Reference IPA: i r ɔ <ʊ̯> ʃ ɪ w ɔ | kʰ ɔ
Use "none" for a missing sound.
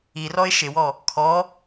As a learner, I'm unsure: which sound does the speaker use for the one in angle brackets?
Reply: ɪ̯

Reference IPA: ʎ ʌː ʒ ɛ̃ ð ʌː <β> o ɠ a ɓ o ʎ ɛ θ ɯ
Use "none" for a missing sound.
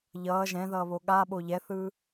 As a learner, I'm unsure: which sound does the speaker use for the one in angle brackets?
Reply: β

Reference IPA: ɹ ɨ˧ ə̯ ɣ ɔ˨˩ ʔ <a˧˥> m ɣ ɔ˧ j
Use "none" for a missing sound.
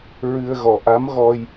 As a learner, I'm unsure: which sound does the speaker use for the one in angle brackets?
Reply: a˧˥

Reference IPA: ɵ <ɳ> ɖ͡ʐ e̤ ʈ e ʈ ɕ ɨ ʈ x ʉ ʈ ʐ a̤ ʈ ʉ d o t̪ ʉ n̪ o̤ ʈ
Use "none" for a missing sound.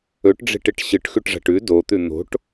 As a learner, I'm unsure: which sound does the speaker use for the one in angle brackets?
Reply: ʈ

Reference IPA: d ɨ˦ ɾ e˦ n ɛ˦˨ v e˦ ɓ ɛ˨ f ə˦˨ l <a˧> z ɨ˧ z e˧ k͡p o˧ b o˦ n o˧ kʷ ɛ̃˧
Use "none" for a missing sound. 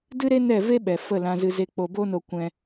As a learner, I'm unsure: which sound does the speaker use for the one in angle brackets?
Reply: ã˧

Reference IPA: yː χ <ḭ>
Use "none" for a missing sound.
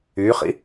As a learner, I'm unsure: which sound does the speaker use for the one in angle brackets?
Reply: ḭ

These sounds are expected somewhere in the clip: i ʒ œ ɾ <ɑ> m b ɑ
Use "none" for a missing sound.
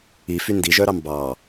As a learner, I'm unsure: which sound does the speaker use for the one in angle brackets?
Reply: ɑ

